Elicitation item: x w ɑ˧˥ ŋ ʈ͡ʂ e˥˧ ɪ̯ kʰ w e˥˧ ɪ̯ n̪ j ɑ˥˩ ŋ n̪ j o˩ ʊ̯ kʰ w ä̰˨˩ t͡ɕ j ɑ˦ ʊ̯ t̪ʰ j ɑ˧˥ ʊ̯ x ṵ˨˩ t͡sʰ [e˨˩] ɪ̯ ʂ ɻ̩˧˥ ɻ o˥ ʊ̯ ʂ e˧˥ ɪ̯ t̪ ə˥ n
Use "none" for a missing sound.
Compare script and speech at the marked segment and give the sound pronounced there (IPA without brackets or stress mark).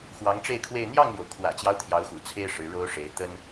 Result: e˥